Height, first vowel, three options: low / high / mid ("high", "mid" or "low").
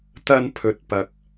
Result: low